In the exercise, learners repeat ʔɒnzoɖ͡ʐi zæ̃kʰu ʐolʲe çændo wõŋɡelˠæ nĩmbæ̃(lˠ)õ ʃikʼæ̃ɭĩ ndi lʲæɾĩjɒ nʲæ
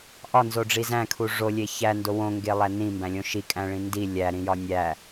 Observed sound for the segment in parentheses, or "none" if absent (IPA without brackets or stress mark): lʲ